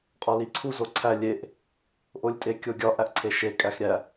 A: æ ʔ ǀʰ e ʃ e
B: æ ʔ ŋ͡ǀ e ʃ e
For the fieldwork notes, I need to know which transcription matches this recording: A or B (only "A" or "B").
A